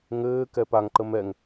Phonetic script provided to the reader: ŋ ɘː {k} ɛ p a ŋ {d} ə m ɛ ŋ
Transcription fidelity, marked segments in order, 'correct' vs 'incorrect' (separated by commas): correct, incorrect